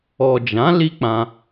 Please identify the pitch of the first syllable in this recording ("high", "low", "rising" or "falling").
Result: low